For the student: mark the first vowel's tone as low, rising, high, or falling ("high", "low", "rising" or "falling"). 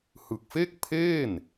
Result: low